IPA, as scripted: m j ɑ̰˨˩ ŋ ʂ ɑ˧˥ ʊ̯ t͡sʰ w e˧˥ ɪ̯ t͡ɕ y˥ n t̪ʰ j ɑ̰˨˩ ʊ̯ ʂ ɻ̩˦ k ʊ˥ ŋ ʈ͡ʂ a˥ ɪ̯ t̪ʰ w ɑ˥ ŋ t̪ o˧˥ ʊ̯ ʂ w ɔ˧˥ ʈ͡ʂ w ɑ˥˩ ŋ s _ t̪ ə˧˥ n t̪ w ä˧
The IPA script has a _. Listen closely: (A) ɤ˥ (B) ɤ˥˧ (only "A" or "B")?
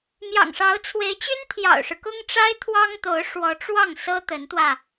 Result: A